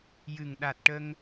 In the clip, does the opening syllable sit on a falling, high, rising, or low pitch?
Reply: low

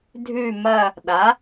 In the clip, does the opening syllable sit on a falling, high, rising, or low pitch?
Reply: falling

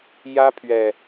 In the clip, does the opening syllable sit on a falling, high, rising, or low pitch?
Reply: high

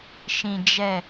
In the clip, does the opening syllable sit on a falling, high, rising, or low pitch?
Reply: low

